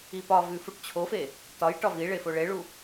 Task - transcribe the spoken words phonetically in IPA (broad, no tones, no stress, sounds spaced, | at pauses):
i p ɒ v ʉ f u ʈ t͡ɕʰ o f e | t ɒ j ʈ ɒ v i ɭ e f o ɭ e ɭ u